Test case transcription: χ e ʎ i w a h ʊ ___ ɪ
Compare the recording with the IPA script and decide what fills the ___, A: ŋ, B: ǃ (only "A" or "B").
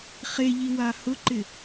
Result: B